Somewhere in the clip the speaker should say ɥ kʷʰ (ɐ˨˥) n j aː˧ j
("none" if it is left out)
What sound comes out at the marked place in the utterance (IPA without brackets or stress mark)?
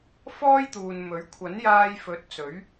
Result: ɐ˨˥